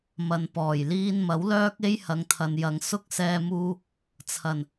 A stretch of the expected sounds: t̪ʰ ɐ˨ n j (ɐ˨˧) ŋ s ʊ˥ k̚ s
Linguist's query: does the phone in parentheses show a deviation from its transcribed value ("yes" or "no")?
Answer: no